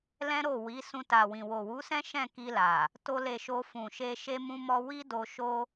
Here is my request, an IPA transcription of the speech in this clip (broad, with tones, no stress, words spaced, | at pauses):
lɛ̃˦ɾo˦˨ wi˨˦sũ˧ta˨ wĩ˨wo˨wu˨˦sɛ̃˦ ʃɛ̃˦˨ ki˧la˨ | to˧le˨ ʃo˧fũ˨ʃe˧ ʃe˦mũ˦ mɔ˧ wi˦do˧ʃo˦